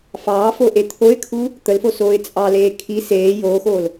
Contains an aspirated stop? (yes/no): yes